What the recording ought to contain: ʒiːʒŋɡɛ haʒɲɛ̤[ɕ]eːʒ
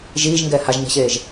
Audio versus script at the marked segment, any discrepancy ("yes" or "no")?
no